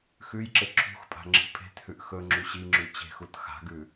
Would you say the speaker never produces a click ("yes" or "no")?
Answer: no